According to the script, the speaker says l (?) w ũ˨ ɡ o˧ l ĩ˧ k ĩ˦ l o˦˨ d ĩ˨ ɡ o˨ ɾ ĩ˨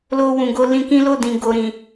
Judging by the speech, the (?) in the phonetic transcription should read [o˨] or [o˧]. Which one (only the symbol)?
o˧